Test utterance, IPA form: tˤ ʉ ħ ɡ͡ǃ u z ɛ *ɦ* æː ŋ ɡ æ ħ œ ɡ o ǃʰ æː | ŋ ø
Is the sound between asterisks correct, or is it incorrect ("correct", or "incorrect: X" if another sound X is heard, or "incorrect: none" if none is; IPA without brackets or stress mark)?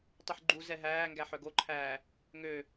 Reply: correct